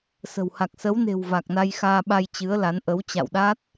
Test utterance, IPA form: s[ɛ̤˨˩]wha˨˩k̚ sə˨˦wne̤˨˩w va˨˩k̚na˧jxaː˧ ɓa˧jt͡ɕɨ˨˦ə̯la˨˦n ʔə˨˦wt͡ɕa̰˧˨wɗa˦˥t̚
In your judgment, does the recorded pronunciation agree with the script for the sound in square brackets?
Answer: no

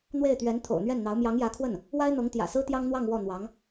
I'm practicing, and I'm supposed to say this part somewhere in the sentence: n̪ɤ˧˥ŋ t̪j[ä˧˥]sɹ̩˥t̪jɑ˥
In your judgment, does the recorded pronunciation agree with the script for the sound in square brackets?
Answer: no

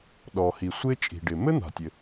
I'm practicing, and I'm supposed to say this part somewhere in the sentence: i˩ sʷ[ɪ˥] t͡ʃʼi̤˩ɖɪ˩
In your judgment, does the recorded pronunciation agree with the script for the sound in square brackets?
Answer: yes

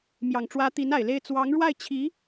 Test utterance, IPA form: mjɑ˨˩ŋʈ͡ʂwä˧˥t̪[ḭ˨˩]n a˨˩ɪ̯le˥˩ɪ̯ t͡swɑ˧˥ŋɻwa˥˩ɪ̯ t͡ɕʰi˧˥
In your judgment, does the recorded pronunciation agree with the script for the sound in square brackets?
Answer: no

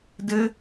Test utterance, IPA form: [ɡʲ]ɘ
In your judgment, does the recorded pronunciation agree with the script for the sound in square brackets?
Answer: no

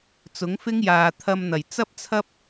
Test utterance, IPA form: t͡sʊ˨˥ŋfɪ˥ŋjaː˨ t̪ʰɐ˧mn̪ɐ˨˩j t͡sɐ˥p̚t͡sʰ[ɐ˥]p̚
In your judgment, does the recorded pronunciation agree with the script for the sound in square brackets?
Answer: yes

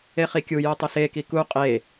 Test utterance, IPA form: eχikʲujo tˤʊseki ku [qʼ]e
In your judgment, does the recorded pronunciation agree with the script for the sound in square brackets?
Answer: yes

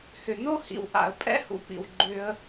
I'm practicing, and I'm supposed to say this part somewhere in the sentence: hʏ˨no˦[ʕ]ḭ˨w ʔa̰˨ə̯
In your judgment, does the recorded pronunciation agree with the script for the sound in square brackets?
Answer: no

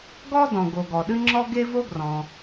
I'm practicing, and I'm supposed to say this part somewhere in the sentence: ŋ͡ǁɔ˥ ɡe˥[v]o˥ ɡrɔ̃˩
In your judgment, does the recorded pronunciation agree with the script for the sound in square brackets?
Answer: yes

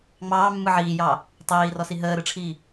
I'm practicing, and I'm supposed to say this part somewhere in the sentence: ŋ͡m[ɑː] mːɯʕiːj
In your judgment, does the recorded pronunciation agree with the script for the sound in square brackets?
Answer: yes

